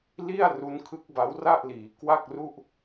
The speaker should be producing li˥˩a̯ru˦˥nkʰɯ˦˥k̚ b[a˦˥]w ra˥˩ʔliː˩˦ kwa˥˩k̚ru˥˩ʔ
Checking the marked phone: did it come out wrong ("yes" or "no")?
no